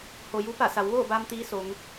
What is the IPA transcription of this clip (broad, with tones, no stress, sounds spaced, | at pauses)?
h o˩ j u˧˥ p a˧˩ s a˩˧ w ʋ oː˥˨ b aː˧ m t̪ iː˧˥ s o˩˧ ŋ